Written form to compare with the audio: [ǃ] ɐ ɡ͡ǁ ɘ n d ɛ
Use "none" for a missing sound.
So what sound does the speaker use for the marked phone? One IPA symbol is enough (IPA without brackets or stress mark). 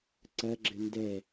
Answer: ǀ